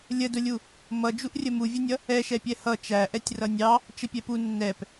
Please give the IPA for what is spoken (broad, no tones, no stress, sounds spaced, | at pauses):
lʲ ə d ʊ lʲ u | m ʌ d͡ʒ u ʔ rʲ ə m u vʲ ʌ nʲ ʌ | ɛ ʃ ɛ pʲ ɛ h ʌ t͡ʃ æ ʔ ɛ tʲ r ʌ nʲ ɑ | t͡ʃ ə pʲ ɛ p u nː ɛ p